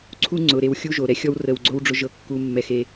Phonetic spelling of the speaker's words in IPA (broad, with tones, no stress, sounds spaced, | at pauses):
ǀʰ u˦ ŋ͡ǀ ʊ˨ ɾ e˧ w xʲ u˦ ʒ o˨ ɾ ɛ˦ xʲ ɔ˦ w r ə˧ w ɡ͡ǀ o˦ w ɖ͡ʐ ʊ˦ ʒ ɤ˦ kː u˧ mː ɛ˧ x e˧